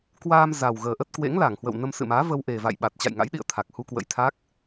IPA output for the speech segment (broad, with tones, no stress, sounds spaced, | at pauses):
k w aː˧ m z a˨˩ w ɣ əː˨˩ ʔ ə˦˥ t̚ k w ḛ˧˥ ŋ l a˧˩ ŋ h w ə̰˧˨ w n ə˧ m s ɨ̰˧˨ m aː˨˦ v ə˧ w ʔ e˨˩ v a̰˧˨ j ɓ a˨˩ t̚ t͡ɕ a̰˧˨ j ŋ a̰˧˥ j ɗ ḭ˧˨ ə̯ t̪ʰ a˨˩ k̚ h u˧ k w ə̰˧˥ j t̪ʰ a˦˥ k̚